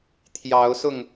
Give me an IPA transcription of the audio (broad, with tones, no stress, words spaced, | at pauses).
t̪ʰjɑ˨˦ʊ̯ sʊ˥˨ŋ